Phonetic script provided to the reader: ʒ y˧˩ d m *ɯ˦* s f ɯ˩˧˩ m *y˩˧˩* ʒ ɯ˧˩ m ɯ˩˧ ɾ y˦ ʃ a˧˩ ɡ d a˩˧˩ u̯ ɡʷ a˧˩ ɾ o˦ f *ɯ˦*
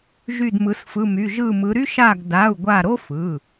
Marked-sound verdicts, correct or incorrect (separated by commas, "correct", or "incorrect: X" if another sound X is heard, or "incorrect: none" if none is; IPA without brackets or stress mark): incorrect: ɯ˩˧, correct, incorrect: ɯ˩˧˩